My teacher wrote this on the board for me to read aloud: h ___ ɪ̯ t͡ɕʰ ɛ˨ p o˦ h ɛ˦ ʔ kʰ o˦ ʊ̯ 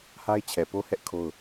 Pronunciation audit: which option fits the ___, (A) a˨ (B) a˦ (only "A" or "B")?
B